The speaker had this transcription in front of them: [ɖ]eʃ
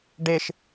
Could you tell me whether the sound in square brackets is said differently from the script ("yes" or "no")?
no